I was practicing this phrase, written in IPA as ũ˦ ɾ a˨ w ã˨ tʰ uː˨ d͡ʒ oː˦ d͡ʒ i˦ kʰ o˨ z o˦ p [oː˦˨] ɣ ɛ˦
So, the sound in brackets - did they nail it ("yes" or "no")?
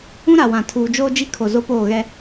yes